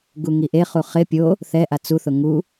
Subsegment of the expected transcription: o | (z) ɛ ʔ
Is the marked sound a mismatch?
yes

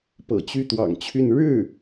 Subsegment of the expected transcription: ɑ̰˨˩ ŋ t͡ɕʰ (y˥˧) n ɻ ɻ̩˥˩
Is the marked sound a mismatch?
no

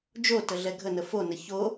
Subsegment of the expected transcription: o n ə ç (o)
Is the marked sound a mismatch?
no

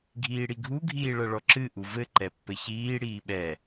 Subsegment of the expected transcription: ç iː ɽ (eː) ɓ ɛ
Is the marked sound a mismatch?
yes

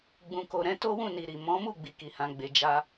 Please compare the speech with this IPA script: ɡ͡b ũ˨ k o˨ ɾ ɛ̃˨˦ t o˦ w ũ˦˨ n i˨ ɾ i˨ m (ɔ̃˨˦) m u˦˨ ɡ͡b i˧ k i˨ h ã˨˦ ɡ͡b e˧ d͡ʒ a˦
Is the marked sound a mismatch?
no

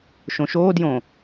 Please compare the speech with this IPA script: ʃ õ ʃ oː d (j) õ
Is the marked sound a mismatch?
no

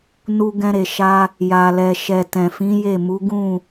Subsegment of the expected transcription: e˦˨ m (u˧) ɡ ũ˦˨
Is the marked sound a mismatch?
yes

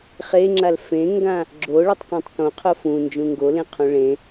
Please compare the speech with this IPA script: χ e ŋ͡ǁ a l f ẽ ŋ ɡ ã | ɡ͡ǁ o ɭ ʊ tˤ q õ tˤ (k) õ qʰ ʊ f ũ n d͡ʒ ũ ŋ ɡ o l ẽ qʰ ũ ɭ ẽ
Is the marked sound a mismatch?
no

